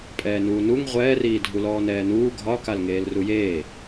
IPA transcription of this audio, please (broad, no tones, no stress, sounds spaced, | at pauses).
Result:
pʼ ɛː n uː n u ŋ ʁʷ ɛː r iː dʱ u l ɔː n ɛː n uː ɡʱ ɒ k a l ŋ eː l r u j eː